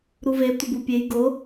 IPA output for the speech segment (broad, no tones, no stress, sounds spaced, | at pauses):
ɾ u v e tʷ ɪ b u pʲ e j ɡ o